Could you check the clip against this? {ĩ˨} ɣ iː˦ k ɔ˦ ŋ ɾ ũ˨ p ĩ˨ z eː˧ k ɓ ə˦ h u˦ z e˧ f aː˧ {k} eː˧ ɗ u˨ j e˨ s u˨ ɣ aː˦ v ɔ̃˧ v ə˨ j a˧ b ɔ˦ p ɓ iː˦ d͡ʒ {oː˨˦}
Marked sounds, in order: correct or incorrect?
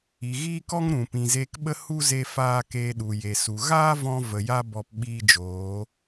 incorrect, correct, correct

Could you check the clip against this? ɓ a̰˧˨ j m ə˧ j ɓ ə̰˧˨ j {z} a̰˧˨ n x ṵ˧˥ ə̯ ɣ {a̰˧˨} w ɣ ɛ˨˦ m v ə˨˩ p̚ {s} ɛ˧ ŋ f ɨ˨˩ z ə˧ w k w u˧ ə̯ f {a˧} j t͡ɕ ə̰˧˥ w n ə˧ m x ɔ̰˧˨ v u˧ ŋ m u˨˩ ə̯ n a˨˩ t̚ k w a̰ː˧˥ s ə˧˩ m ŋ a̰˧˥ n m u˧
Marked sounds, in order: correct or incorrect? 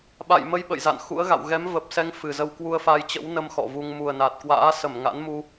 correct, correct, correct, correct

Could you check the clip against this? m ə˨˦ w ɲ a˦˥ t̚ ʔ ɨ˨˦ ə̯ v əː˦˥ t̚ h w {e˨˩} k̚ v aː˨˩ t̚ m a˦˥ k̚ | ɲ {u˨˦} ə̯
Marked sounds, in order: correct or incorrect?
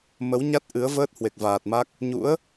correct, incorrect

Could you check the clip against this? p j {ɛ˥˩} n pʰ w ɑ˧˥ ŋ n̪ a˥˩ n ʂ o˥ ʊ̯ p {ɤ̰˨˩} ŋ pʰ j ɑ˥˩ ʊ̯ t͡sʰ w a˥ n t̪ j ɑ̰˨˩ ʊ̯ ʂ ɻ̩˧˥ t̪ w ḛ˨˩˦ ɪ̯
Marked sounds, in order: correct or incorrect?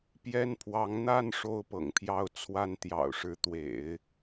incorrect, correct

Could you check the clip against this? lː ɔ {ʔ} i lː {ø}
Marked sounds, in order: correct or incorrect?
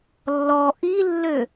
correct, correct

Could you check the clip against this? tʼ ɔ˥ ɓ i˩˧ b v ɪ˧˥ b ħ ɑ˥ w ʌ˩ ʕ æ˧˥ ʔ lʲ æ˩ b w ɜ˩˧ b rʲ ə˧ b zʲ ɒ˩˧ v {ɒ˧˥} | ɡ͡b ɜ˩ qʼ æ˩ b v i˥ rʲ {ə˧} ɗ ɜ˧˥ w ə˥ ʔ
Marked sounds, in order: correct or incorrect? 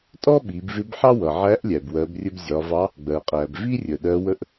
incorrect, incorrect

